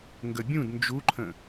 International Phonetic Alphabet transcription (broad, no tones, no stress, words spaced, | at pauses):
ŋɡəbʲũd nd͡ʒuǃʰə̃